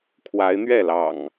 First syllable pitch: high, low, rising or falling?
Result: rising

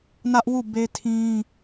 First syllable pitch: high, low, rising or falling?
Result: high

